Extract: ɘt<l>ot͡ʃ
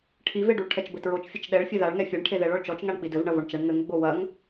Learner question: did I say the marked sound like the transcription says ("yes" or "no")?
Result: no